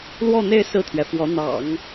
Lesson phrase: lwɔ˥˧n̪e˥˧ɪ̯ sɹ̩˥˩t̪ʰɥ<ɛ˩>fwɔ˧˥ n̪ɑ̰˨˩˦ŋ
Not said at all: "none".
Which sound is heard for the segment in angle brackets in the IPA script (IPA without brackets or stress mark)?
ɛ˩